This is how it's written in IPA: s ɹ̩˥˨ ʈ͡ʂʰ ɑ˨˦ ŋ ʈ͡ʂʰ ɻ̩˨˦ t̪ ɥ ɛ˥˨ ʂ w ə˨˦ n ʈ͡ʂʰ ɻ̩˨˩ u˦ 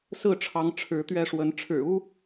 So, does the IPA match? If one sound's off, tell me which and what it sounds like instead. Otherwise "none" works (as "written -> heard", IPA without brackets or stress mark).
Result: none